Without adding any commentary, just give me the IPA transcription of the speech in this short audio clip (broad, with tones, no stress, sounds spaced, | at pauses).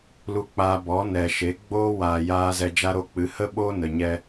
l u˧ k͡p aː˧ b ɔ˨˦ n ɛ˨ ʃ e˨˦ ɡ͡b oː˦ w aː˨ j aː˧ z ɛ˧ d͡ʒ a˦ ɾ o˦ k͡p ɨ˨˦ h ə˦ ɓ oː˦ n ə˨ ɲ ɛ˧